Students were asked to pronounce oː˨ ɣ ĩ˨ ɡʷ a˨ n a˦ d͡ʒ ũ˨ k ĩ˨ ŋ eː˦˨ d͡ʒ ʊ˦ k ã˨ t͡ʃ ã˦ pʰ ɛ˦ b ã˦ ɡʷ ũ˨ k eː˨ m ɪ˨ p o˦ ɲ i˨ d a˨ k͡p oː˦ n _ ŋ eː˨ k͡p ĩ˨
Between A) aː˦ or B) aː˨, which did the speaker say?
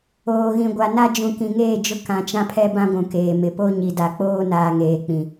B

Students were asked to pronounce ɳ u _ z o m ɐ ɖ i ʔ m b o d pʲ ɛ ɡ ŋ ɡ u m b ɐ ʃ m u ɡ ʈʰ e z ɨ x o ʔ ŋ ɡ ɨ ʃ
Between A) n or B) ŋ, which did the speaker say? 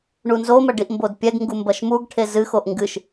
A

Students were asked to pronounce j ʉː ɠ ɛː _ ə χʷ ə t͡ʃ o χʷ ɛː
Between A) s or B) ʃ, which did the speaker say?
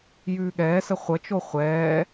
A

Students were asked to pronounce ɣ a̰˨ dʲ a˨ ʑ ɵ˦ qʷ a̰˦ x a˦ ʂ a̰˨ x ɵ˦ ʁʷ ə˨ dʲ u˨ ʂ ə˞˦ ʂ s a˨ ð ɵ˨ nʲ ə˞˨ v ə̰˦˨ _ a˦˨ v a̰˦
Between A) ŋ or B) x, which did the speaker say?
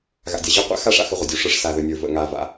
A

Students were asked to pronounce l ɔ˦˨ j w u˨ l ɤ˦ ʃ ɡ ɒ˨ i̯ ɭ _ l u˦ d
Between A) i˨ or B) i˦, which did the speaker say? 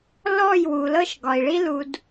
B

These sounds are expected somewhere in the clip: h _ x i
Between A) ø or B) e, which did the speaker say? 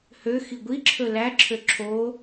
A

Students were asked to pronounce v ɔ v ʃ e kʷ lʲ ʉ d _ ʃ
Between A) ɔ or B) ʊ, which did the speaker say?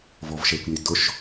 B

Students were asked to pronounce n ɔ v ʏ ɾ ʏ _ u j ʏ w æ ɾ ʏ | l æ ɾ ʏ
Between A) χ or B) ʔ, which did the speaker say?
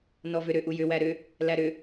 B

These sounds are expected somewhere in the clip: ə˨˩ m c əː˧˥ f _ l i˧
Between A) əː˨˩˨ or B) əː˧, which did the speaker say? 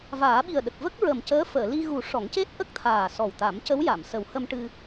A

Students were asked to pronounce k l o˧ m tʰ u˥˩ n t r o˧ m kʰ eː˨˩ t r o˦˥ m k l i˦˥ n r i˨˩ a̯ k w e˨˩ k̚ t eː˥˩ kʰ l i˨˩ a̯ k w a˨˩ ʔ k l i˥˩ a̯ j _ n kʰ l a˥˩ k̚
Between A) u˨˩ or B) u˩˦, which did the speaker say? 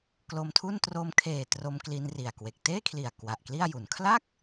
A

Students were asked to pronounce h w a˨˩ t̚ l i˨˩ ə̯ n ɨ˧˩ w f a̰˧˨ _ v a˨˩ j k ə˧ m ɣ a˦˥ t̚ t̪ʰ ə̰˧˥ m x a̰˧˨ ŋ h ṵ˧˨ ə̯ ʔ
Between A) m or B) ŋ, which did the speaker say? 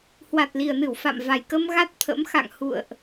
A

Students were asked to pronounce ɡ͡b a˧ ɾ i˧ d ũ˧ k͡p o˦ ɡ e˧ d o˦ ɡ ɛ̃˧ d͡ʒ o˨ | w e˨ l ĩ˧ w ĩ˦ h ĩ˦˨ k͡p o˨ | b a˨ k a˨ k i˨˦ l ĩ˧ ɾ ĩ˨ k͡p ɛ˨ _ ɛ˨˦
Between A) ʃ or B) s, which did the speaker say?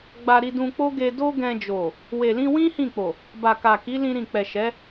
A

